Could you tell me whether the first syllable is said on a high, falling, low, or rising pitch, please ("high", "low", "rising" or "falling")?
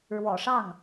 low